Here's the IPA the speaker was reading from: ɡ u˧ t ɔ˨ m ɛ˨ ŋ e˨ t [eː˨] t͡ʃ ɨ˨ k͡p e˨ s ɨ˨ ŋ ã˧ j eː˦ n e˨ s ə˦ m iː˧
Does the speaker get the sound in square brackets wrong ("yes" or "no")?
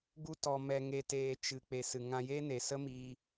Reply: no